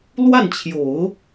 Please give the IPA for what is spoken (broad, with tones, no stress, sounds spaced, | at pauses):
l w a˥˩ n t͡ɕʰ j o˨˩˦ ʊ̯